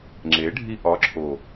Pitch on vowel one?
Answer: rising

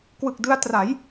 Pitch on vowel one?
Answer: low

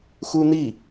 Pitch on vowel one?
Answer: high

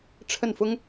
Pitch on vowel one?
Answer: falling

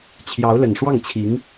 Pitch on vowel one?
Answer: rising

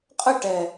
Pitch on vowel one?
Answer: falling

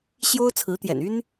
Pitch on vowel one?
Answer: high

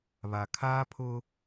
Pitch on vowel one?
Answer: low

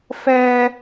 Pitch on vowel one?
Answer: high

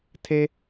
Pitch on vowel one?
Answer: low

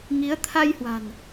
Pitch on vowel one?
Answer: rising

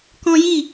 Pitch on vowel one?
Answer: high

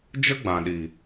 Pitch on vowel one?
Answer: high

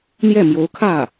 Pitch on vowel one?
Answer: falling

